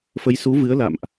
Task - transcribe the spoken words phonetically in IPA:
f ə˨˦ j s u˨˦ v ɨ˨˦ ə̯ l a̰˧˨ m ʔ

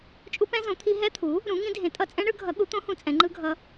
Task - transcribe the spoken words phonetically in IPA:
t͡ʃʼ u˧˥ p ɛ̃˧˥ z õ˩˥ t̪ʰ i˧˥ ɦ ɛ˧˥ t̪ʰ u˩˥ | ɾ ũ˩˥ ŋ ĩ˧˥ dʱ ẽ˩˥ tʼ ʌ˧˥ t͡sʼ ɛ̃˧˥ ɳ ɯ˩˥ ɡʱ ʌ˩˥ ɠ u˩˥ t̪ õ˧˥ h ũ˩˥ t͡sʼ ɛ̃˩˥ ŋ͡ǃ ɯ˧˥ ɡʱ ʌ˧˥

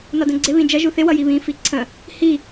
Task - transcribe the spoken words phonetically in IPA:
n ɒ d ə̃ ɡ͡ǀ ɪ β ĩ d͡ʒ ʌ ʒ u θ ɪ w ʌ j i β ĩ f i ǀʰ ə̃ | h i

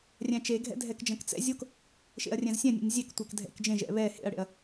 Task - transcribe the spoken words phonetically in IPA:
rʲ æ̃ t͡ʃ e ɡʱ ɛ̰ dʱ ɛ k d͡ʒ ɐ̃ k t͡s ɛ̰ zʲ o k | ʃ ḛ ɐ̯ rʲ ɛ̃ z sʲ ɛ̃ nʲ ɛ̰ nʲ zʲ e k tʷ æ k dʱ ɛ̰ k d͡ʒ ẽ ʒ ɛ̰ β ɛ h ḛ ɐ̯ ɽ ḛ ɐ̯

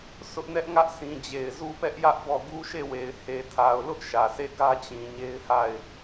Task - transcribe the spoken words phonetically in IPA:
sʰ ʊ˦ ʔ n ɛ˦ ʔ ŋ ä˦ ʔ s ĩ˨ d͡ʑ e˨ ɪ̯ z u˦ p ɛ˦ ʔ j ä˦ ʔ b ɔ˦˨ ɡ u˦ ʃ e˦˨ w e˨ ɪ̯ h e˨ tʰ a˨ ʊ̯ l ʊ˦ ʔ ʃ ä˨ s e˦˨ ɡ ä˦ t͡ɕ ĩ˨ ɲ e˦ ɪ̯ h a˦˨ ɪ̯

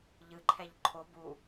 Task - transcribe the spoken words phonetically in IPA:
ʎ ɯ ǃʰ ɛ ʎ ǃʰ o b u

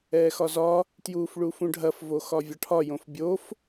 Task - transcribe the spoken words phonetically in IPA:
ɛː x ɒ z ɒ | t j uː f ɭ u f ũ ɖʱ ɐ f v o x ɒ vʲ ɒ ʈʰ ɒ j õ f bʲ o f

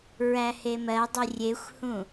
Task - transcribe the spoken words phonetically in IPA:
ɹ æ h e m ɜ dˤ i rʲ e xʷ h ũ

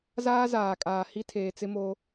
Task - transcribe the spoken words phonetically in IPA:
z aː˦ z aː˨ kʼ aː˨ h i˦ tʰ eː˨ t͡s ɪ˦ m o˦

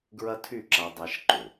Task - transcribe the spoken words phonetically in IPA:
ɡ ɹ ɐ˦ tʰ y˦˨ ǁ a˧ dˤ a˧ ʃ ǃ ʏ˨

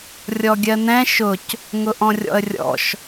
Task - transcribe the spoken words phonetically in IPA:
rʲ ɔ ɡʲ ɜ n ɛ̃ ʃ ʊ c | ŋ ʊ ʔ ɔ̃ rʲ ɔ̰ ə̯ rʲ ɔ̰ ʃ

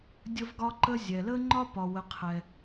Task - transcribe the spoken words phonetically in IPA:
dʲ ə˥ v ɡ ɒ˥ ǃ ə˥ zʲ ɛ˧ l ə˥ ŋ͡ǃ ɒ˥ p ɒ˧ w ə˧ qʰ ɛ˧

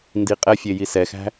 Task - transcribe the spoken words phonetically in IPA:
n d i qʼ ɛ fʲ e j i s ɛ x æ̤

